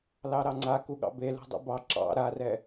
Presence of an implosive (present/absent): present